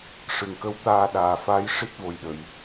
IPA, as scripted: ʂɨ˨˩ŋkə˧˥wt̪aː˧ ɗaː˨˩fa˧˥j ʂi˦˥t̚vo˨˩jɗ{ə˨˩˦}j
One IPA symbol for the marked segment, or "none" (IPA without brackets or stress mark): ə˨˩˨